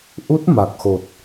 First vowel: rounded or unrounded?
rounded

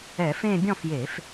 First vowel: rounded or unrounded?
unrounded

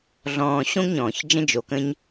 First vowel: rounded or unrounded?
rounded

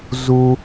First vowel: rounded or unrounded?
rounded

